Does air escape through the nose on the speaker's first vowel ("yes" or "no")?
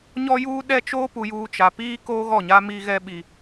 no